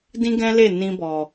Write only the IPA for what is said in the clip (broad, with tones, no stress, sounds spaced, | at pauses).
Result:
d ĩ˦ ɡ ɛ̃˦ l e˦˨ n ĩ˧ b ɔ˨